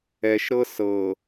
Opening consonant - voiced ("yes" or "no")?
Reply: no